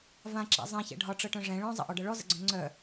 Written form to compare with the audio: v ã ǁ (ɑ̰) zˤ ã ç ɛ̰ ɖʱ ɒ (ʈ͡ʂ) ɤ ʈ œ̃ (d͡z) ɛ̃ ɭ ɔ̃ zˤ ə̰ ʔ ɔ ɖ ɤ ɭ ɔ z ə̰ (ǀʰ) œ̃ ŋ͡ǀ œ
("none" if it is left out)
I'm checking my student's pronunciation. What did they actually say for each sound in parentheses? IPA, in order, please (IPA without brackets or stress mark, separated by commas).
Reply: a̰, ʈ͡ʂ, ʐ, ɡ͡ǀ